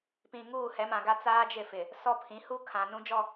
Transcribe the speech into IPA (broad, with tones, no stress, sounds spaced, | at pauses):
p ĩ˨ ŋ uː˦˨ h ɛ˨˦ m ã˨ ɡ a˦ t͡s aː˦ d͡ʒ ɪ˦˨ f ɪ˨ | s ɔ˦ pʰ ĩ˨˦ h u˦ kʰ ã˨ n ũ˦ d͡ʒ ɔ˦˨